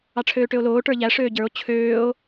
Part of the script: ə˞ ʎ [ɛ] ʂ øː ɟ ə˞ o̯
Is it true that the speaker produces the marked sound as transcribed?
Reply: no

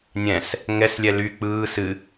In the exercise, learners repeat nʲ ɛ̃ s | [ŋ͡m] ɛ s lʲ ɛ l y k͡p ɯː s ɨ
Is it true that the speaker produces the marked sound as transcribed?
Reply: no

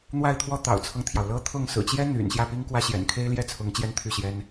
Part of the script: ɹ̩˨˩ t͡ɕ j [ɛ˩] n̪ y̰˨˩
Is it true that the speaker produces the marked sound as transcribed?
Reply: no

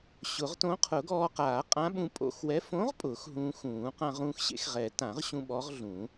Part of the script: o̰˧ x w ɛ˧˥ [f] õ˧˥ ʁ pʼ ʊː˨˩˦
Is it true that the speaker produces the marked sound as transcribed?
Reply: yes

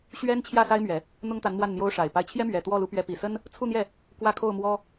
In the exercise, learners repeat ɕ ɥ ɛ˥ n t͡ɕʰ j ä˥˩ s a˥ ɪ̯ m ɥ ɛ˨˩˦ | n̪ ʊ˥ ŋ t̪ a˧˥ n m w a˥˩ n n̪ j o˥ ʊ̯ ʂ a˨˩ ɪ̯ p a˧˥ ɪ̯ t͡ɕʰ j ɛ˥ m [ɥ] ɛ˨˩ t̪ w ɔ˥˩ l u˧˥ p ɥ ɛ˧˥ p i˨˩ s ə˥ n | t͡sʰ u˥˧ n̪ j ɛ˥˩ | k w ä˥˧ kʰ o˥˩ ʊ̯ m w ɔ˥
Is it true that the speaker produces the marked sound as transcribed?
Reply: yes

